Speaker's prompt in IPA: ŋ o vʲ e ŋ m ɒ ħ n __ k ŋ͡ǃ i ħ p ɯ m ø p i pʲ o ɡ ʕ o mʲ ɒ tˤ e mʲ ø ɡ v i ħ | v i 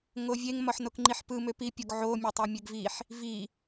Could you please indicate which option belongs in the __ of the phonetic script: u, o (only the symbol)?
o